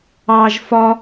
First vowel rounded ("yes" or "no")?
no